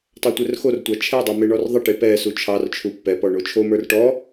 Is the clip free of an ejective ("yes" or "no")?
yes